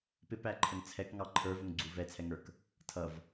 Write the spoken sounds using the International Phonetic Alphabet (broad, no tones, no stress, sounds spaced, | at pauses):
p ɪ p æ ǃʰ ə ŋ t͡sʰ ɛ k ŋ ɑ ǃʰ ə˞ v ʊ ŋ ɡ͡ǀ u v ɛ t͡sʰ ɛ ŋ ə˞ k | tʰ ʌ v